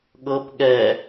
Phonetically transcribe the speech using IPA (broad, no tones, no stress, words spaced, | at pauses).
ɠɤp ɠɛ